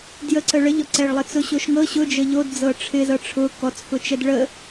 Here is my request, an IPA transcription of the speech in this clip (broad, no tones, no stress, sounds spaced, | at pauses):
d j ə ǀ ə ɭ ə ʎ ɔ ǀ ɛ ɭ lˠ ɪ t͡s ʊ ɕ o ʃ ŋ ɤ ɕ ʊ d͡ʒ ə ʎ o d d͡z ɤ ʈ͡ʂʰ ɪ z ɤ ʈ͡ʂʰ ʊ k ɔ t͡s k ʊ t͡ʃ ɛ d ɭ ə